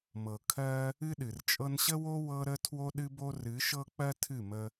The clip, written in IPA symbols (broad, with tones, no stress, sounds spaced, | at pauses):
m ɤ˨ kʰ ɜ˧ | ɨ˦ ɗ ɨ˨ r t͡ʃʼ ɤ˦ n ɕ ə˦ w o˦ w ɤ˦ ɾ ə˦ tʰ w o˦ ɗ ɨ˦ b o˦ r ɨ˨˦ ʃ ɤ˦ k͡p ɜ˦ tʰ ɨ˦˨ m ə˧